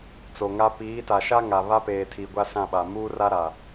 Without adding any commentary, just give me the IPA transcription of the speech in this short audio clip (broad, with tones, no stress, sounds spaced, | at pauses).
t͡s o˨ ŋ a˦ p iː˨˦ t a˨ ʃ a˦ ŋ a˨ β a˦ p eː˨ tʰ i˨ ɡʷ a˦ s ã˦˨ ɓ a˨ m uː˦ r a˦ ɾ a˨